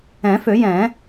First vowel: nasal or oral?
nasal